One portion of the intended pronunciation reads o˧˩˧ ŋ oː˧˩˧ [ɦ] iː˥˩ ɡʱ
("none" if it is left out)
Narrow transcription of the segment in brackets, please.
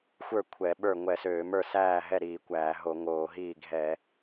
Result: ɦ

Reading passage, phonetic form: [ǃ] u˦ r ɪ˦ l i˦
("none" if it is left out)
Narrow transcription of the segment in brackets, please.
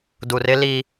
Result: d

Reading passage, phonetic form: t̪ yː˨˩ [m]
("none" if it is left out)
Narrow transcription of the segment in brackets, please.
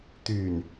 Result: n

